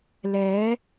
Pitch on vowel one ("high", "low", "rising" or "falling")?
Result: rising